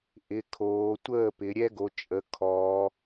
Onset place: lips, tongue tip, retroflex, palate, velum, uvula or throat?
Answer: throat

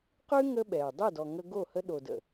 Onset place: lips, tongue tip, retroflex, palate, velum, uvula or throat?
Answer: uvula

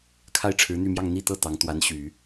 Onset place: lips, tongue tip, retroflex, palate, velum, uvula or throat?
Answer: velum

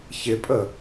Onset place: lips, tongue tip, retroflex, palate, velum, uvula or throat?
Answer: palate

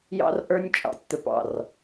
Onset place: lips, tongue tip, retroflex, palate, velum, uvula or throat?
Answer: palate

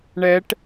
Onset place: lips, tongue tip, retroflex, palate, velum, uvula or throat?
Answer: retroflex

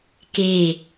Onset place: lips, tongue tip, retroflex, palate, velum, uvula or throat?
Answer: velum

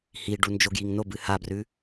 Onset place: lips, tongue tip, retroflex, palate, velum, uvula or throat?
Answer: throat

